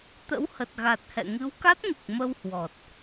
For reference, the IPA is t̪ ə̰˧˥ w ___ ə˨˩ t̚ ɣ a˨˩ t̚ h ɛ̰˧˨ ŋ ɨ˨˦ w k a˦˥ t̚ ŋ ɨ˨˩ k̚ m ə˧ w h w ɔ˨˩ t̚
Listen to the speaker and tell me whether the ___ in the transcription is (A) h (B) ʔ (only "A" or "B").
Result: A